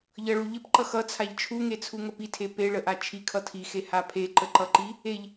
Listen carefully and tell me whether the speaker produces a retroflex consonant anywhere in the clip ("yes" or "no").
yes